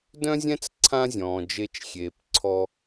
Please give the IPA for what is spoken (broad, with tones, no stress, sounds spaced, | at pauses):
d œ̃˥ zʲ ɛ̃˥ t͡s ǀʰ ã˥ zʲ ɔ̃ː˩ d͡ʒ e˧ t͡ʃ xʲ eː˩ p ǀʰ ɔ˧